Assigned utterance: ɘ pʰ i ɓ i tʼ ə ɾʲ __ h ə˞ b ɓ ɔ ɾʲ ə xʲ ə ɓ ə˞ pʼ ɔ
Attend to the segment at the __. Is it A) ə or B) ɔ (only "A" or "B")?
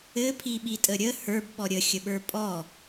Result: A